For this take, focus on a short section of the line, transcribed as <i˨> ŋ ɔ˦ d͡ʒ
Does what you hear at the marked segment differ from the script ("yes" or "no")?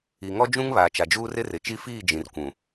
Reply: no